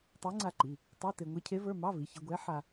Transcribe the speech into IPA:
tˤ e˧˥ ŋ͡ǀ a˧ ǃ i˩˧˩ | tˤ o˧˥˧ t e˧ ŋʷ e˧˥ cʰ e˧˥ v ə˞˧˥˧ m ɑ˧˥˧ v i˩˧˩ ç e˧ ɡʷ ɛ˧˥ ħ a˧

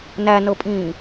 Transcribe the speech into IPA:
n æ n ɤ pʼ ĩː

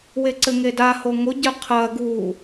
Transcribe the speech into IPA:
w e ǀ ɘ ŋ e d a h o ŋ o ɟ ɘ qʰ ɐː ɡ uː

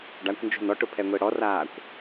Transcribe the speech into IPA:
ɖ a kʷ n d͡ʒ o̤ n ɔ ʈ ʊ pʰ ɛ ŋʷ e ɽ ɔ r aː kʷ

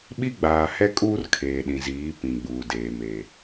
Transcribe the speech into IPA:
ɓ i˦ ɡ͡b aː˨ h ɛ˦ kʼ uː˦ r kʰ eː˨ ɗ ĩ˨ z iː˨˦ p ĩ˨ ɡ͡b uː˨ d eː˨ m e˨

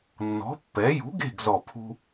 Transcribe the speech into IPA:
nː ɔ̤˨˥ pː ɛ˨˥ j ṳ˨˥ ɡ e̤˦˨ ɡ z ɔ˦˨ pʰ ṳ˥

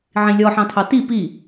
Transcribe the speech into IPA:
ʕ ĩ lʲ ɔ ħ ɑ̃ tʰ ɑ t i p i

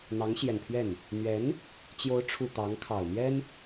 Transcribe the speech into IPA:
n̪ ɑ˧˥ ŋ ɕ j ɛ˨˩ n pʰ ɥ ɛ˥˩ n | n̪ ɥ ɛ˧˥ n | t͡ɕ j o˧˥ ʊ̯ ʈ͡ʂʰ u˨˩ t̪ ɑ˧˥ ŋ kʰ ɑ˨˩ ʊ̯ n̪ j ɛ˥ n

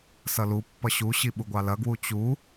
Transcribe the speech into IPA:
s ʌ l u pː ʌ ɕ u ɕ i ɓ u ɡʷ ɑ l ɐ ɡ w u t͡ɕ u

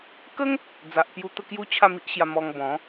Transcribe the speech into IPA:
k ə˦ ŋ | d͡z a˨ ʔ p j u˧ t̪ ə˥˧ k j u˦ t͡ɕʰ a˥˧ m i˦ ʔ ɕ j a˧ m ɔ˧ ŋ b ɔ̃˨˦

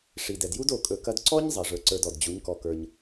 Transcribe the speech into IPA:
ʂ i˨ d ɛ˨ d j u˦ d o˧ kʼ ɵ˧ k ɐ˦ d ǀ ɔ˦ ɲ zˤ ɐ˨ ʐ ə˞˧ ǀ ə˞˧ d ɔ˨ d d͡ʑ u˨˦ ɲ k ɔ˧ k ə˞˧ ɲ

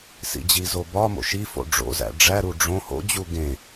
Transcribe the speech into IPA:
s ḭ d͡ʑ i z o b ɒ m o̰ ʃ i f o̰ ɖ͡ʐ o̰ z æ̰ ɖ͡ʐ æ ɾ u ɖ͡ʐ õ h o̰ d͡ʑ u ɡ ẽ

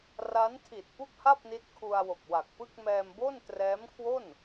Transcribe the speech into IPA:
r a˦˥ n tʰ i˨˩ t̚ p u˥˩ k̚ h a˥˩ p̚ n i˦˥ t̚ kʰ u˧ a̯ w o˨˩ k̚ w a˨˩ k̚ p ɯ˥˩ k̚ m ɛː˧ m b o˥˩ n t r ɛː˦˥ m kʰ w o˥˩ n

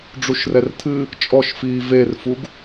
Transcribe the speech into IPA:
ɖ͡ʐ u ʃ r ɛ r tʰ ɨ | t͡ʃʼ ɔ ʃ f iː v e r f u ɡ

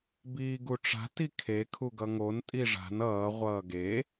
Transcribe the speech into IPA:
b iː ɡ u ʈ͡ʂ a̤ t i kʰ e kʰ u ɡ ʌ ŋ o n tʼ i ʐ a̤ n ʌː ʁʷ ʌː ɡ e

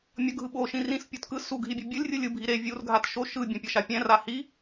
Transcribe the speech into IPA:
mʲ ʌ ɡʱ ɯ ɓ o ʃ ĩ r ĩ s pʲ o t k ɯ s u ɡʱ i bʲ ɯ bʲ ɯ lʲ rʲ ɯ lʲ ɯ bʱ i ɾ e vʲ u r ɡʱ a t ʃ o ʃ ɯ bʲ ɛ̃ pʲ ʌ ʃ a pʲ ɛ̃ r a h i

